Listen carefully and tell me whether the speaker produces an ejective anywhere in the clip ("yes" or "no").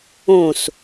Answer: no